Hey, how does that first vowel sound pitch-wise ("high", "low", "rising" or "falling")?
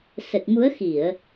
low